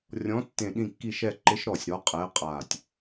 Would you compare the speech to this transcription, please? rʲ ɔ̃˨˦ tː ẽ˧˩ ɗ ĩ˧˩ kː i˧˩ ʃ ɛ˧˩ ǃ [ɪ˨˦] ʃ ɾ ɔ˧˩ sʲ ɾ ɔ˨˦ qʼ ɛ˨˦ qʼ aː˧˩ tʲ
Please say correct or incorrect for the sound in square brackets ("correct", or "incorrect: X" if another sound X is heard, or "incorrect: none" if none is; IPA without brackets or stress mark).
correct